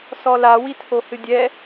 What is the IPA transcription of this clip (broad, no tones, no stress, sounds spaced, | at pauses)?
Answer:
s ɔ l a w i tʰ o h ɨ dʲ ɛ